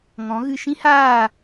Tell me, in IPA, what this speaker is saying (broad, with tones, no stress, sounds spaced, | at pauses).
ŋ ɔ̃˨˦ ɣ ɨ˧ ʃ ĩ˦ h aː˦˨